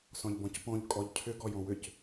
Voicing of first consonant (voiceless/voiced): voiceless